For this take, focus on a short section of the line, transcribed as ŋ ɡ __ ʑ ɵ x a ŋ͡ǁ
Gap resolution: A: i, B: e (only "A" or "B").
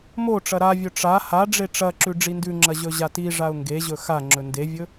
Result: B